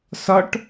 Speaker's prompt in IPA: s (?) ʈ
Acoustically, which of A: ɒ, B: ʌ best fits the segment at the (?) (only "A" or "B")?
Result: A